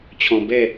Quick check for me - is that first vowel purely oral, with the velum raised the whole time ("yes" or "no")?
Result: no